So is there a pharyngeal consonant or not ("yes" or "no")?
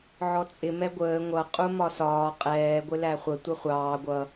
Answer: yes